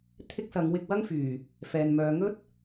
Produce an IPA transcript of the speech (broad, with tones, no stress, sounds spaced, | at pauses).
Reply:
t̪ʰ ɪ˥ k̚ s ɐ˨˧ ŋ w ɪ˧ k̚ w ɐ˥ ŋ f yː˨˩ | f ɛː˨ n m œː˨˧ ŋ ɵ˥ t̚